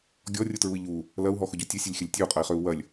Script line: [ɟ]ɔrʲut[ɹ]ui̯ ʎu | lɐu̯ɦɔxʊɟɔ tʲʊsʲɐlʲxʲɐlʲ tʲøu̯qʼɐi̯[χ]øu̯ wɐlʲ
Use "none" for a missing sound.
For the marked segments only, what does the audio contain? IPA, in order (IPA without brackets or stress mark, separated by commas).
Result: ɡʲ, ɹ, χ